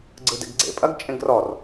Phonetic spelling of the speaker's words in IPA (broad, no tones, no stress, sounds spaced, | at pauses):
ɡ͡ǀ ɯ d ɛ̰ ɡ ɡ͡ǀ ḛ pʼ ɐ ɡ t͡ʃʼ ẽ ɡ r ɔ r